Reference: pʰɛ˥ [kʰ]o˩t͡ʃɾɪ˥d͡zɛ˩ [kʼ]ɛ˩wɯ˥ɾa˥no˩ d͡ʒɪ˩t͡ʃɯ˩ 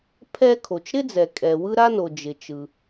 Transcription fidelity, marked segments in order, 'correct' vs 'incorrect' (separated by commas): correct, correct